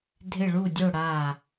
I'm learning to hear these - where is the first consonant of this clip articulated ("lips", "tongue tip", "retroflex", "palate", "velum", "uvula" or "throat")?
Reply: tongue tip